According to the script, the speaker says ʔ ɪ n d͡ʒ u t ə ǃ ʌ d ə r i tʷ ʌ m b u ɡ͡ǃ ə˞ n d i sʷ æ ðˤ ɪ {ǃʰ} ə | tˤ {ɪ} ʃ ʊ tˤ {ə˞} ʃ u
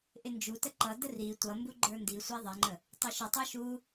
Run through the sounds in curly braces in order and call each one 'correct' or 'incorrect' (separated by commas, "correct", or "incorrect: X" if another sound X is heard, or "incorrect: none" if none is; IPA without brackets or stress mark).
incorrect: ŋ͡ǃ, incorrect: ɛ, correct